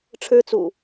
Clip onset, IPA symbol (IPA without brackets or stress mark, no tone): ʈ͡ʂʰ